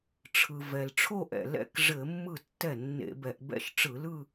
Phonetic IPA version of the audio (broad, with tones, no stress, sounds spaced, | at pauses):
ʈ͡ʂʰ ɯ˩ v ɛ˩ l ʈ͡ʂʰ o˥˧ ʔ ɛ̰˩ l ɛ̰˥˩ k ʐ ɘ˧˩˧ mː ɯ˥˩ tː ɛ˥˩ nː ḛ˧˩˧ b ɛ˧˩˧ ʔ b ɛ̰˥˧ ʃ ʈ͡ʂ ɯ˧˩˧ l ɯ˥˧